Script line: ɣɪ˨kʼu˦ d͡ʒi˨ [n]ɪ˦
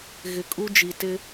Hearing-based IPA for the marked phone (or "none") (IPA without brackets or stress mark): t